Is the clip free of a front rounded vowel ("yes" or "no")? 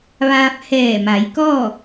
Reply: yes